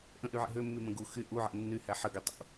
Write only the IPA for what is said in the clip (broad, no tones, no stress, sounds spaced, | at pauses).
ʔ ə̃ ʔ y ʕ ɛ̰ ɦ ø mː y m ə̃ ɡ u x y ʔ u ʕ æ̰ nː y h æ ħ ə ɡ ø tˤ ṵ